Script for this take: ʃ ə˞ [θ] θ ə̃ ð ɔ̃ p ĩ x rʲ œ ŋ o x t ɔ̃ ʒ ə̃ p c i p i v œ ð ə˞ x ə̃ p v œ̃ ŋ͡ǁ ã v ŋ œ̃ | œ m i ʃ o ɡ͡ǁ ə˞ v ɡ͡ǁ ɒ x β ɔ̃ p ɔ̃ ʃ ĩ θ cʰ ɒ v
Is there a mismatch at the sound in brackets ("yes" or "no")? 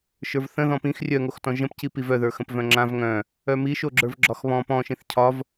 yes